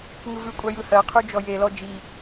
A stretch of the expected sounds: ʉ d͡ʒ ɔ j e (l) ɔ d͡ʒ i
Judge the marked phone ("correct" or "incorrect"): correct